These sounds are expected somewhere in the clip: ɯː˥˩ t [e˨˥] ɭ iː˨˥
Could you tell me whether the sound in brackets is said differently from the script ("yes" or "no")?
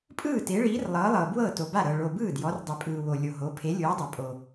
no